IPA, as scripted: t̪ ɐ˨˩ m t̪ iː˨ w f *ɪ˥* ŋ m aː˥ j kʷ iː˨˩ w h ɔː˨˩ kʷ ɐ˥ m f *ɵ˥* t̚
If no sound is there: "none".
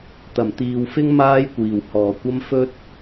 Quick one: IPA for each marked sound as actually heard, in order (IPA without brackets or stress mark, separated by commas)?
ɪ˥, ɵ˥